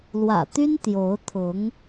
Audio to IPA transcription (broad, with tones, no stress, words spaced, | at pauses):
lwä̰˨˩t̪y˥n t̪jo˧˥ʊ̯t̪ʰʊ˧˥ŋ